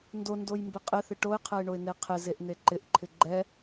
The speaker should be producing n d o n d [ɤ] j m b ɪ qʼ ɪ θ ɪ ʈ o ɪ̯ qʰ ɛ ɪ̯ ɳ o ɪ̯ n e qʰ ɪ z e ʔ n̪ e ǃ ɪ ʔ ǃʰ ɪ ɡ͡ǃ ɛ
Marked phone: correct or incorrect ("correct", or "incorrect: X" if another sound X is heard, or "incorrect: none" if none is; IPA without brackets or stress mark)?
incorrect: o